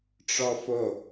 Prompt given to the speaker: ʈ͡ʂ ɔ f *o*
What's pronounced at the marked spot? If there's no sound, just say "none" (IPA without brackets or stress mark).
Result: o